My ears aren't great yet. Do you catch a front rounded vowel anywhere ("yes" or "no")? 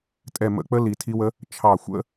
no